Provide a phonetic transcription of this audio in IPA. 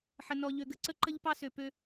ħ ə˨ n ɔ˨ ʎ ø˨ ɡ ə˨ ǀ ə˦ ǃ ə˦ ʎ p ɑ˦ s ø˨ p ø˦

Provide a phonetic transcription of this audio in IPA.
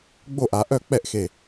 ɡ͡b o˥˩ ʔ a˩˧ ʔ œ˥˧ k͡p ɛ˥˩ ʔ x e˧˩

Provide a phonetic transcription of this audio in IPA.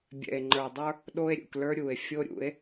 bʲ ɛ̰˨ e̯ ŋ͡ǃ ə˞˨ dˤ ə˞˦ | ɗ o˦ e̯ ɾʲ ṵ˨ k l ə˞˦ ɾʲ u˨ e̯ fʲ o˦ ɾʲ ṵ˨˦ e̯

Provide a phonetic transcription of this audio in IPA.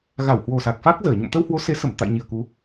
ɣ a˧˩ w h w o˨˩ s a˨˩ k̚ f a˦˥ k̚ z əː˧˩ ɲ o̰˧˨ m t̪ ə˧ w h w o˨˦ s e˨˦ s ə˧˩ m t̪ a̰˧˨ j ɲ i˨˩ ə̯ k u˨˦

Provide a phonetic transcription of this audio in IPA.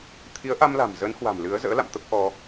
t̪ʰ i˨˦ ə̯ ʔ a˧ m l a̤˨˩ m z ə˨˦ n h w a̤˨˩ m l ɨ˨˦ ə̯ z ə̰ː˧˥ l a̰˧˨ m t̪ ə˦˥ p̚ ʔ ɔ˧

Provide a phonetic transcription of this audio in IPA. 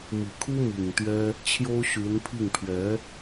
m i˨˩ kʰ u˥ m i˨˩ ŋ t̪ ɥ ɛ˥ | t͡ɕʰ j o˥ ʊ̯ ɕ y˧˥ n pʰ i˥˩ ŋ pʰ ɥ ɛ˧˥

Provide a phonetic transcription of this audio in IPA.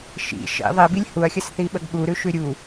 ʃ ḭ ʃ ḭ ðˤ i b i lʲ h u ɐ̯ xʲ ə s θ i ɓ ə ɡ ɠ u ɾ ʉ ʃ ʉ ɾʲ u

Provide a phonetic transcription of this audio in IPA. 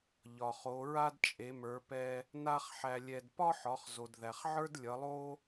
ʎ ɒ˩ χ o˩˧ ɹ a˥ d t͡ʃʼ e˩˧ m ə˞˩˧ p ɛ˧ | n a˥ χ ħ æ˧ lʲ ɛ˧ d p ɒ˥ ħ ɒ˩˧ χ z o˩ d ð æ˩ χ ʕ ə˞˥ d lʲ ʌ˩˧ lˠ o˥

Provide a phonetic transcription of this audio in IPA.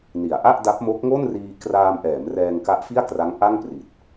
n i˩˦ a̯ ʔ a˥˩ ʔ d a˦˥ p̚ m o˦˥ k̚ ŋ o˥˩ n r iː˧ k r aː˧ m ʔ ɛː˩˦ m r ɛː˧ ŋ k a˦˥ ʔ f i˥˩ a̯ k r a˦˥ ŋ ʔ a˥˩ ŋ p r i˨˩ t̚

